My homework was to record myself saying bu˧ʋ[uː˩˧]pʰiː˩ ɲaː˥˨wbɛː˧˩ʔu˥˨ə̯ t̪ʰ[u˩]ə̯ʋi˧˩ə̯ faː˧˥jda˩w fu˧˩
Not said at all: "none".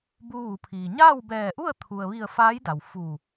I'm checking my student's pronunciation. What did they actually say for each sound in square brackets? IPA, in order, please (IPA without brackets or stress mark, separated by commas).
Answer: u˩˧, u˩